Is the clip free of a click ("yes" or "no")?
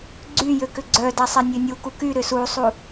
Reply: no